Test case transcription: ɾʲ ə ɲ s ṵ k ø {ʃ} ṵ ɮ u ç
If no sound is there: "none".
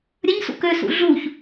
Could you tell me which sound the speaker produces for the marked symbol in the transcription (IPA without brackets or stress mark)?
s